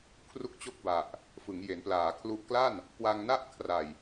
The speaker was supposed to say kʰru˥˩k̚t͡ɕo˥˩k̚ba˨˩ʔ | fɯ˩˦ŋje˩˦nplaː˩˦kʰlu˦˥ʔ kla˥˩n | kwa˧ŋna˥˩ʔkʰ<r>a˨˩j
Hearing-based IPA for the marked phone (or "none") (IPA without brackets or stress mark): r